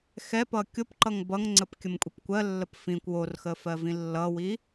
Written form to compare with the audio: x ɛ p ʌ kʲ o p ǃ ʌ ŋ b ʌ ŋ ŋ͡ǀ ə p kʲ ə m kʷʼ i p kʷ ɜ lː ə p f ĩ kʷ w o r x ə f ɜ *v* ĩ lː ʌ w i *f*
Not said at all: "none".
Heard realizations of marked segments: v, none

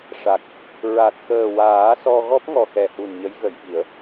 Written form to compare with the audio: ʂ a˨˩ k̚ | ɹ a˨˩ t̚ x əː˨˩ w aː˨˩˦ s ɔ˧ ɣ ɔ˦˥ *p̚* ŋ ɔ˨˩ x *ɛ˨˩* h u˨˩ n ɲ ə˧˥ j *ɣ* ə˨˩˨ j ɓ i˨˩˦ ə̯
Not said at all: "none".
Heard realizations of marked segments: p̚, ɛ˨˩, ɣ

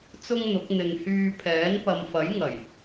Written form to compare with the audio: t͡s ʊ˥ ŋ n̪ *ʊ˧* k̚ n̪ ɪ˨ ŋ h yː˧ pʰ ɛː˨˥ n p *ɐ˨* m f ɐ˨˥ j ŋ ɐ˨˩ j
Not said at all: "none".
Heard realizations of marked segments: ʊ˨˥, ɐ˨

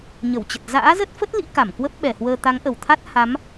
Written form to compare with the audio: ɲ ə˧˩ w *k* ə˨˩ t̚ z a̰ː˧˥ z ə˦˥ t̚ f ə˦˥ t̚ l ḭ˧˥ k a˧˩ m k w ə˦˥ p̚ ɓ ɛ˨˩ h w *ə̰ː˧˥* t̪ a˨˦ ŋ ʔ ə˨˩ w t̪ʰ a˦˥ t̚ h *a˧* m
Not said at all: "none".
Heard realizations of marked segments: t͡ɕ, əː˧, a˨˦

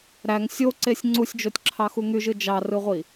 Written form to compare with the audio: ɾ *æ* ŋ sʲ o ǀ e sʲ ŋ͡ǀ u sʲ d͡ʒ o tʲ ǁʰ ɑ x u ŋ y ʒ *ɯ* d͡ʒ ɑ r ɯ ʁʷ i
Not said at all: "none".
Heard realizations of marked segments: æ, ɯ

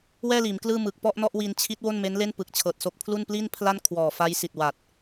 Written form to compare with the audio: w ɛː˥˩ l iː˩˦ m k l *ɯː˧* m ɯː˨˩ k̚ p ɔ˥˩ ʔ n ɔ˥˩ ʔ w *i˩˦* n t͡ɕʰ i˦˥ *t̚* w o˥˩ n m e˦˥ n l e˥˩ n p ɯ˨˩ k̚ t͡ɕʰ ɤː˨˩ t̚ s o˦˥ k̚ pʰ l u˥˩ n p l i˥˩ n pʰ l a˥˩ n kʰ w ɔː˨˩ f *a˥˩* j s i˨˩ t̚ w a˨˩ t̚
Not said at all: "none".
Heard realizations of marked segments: ɯː˥˩, i˧, t̚, a˦˥

